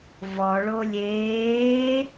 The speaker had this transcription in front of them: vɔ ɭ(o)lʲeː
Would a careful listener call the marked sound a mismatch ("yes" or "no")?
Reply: no